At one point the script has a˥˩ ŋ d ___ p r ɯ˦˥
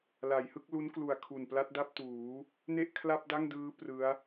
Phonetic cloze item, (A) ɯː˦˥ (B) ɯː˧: A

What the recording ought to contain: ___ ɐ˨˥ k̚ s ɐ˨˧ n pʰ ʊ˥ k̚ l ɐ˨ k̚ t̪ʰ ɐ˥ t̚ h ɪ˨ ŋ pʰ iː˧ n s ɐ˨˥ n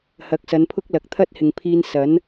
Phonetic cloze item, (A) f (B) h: B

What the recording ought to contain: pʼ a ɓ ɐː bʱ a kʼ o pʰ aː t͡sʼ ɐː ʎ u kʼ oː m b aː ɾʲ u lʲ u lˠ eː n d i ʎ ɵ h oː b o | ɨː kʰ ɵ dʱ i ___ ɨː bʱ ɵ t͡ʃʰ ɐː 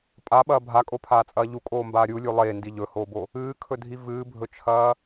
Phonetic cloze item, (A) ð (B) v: B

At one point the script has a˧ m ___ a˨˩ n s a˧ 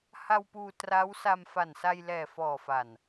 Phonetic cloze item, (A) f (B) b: A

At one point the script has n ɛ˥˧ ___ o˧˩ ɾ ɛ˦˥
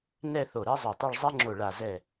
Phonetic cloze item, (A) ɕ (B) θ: B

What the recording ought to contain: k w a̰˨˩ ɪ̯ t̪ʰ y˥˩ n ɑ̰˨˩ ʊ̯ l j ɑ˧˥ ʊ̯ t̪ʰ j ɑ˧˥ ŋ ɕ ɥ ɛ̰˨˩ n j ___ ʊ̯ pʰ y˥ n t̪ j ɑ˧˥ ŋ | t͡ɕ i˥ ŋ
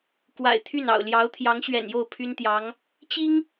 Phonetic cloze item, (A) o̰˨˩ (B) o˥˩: B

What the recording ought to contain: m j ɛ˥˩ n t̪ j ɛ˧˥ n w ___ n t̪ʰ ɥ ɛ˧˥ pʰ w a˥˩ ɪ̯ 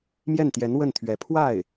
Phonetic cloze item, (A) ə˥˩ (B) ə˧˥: A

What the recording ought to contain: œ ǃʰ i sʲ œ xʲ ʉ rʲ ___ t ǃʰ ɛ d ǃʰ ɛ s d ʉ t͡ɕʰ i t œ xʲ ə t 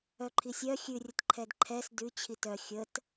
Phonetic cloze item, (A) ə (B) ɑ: A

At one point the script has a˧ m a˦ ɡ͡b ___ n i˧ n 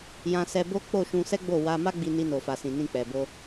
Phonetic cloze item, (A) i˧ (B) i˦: A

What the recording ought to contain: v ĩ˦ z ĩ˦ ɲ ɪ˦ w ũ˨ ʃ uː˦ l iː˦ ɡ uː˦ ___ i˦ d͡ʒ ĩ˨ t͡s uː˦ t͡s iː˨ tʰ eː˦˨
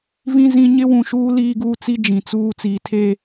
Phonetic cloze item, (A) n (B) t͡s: B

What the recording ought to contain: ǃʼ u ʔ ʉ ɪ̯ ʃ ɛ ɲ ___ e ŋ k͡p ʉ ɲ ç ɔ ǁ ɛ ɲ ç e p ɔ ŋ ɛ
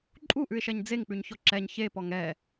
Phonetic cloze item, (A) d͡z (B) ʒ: A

